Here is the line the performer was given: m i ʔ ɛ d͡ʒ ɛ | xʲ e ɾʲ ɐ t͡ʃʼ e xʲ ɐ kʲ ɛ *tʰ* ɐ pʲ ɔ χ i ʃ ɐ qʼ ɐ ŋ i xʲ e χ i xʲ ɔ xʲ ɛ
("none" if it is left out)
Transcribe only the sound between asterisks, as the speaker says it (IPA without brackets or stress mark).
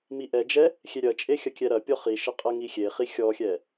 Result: ɾ